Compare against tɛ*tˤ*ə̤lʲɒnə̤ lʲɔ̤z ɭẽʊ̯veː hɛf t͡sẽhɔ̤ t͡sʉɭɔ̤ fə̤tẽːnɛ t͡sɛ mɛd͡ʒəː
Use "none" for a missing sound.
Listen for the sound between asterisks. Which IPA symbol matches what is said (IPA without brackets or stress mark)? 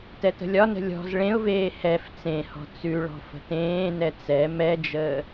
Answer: t